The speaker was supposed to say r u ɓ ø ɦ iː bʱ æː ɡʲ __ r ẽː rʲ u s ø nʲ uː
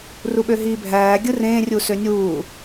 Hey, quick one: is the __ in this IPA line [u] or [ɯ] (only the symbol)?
ɯ